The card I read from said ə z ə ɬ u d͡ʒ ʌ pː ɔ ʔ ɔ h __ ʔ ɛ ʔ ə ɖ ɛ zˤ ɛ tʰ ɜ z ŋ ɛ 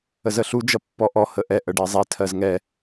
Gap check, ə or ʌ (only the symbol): ə